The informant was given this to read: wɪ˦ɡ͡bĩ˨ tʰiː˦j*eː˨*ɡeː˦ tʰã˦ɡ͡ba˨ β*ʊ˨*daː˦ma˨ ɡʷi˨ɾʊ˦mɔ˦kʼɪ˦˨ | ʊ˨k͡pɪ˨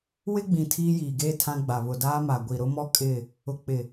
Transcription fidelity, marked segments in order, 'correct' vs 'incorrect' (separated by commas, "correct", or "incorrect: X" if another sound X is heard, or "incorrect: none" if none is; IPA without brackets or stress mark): incorrect: iː˨, correct